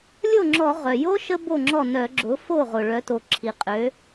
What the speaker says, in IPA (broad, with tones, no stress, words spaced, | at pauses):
lʲo˥˩ŋ͡ǁɔ˧˩˧ ʁœ˩jo˥ ʃə˥bo˥˩ŋ͡ǁɔ˥˩ nœ˧˩˧ɡ͡ǁʊ˩˥ fo˥˩ʁʊ˩ ɭœ˩˥to˩ǁʰi˩ qʼø˩˥